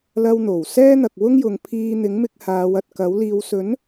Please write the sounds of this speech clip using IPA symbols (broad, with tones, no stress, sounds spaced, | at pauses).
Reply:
l ɐ˧ w n̪ o˨˩ w s ɛː˥ n̪ ɐ˨ k̚ w ʊ˥ ŋ j ʊ˨˧ ŋ pʰ iː˧ n̪ ɪ˨˥ ŋ m ɪ˧ k̚ h aː˨˧ w ɐ˨ t̚ k ɐ˨˥ w l iː˨ w s ɵ˨˥ n